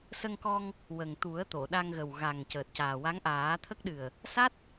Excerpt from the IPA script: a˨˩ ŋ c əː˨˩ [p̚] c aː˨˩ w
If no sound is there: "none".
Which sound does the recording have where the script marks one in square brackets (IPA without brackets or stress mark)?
t̚